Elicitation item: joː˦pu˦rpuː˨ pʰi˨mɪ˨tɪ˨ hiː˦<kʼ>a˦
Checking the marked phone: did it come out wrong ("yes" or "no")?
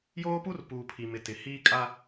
no